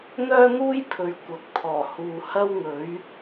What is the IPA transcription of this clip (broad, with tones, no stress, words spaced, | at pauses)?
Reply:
n̪œː˥n̪uː˥jpʰɵ˨ɥ kʷɐ˨˥k̚t̪ʰɔː˨˩ huː˨hɐ˥wŋɵ˨˥ɥ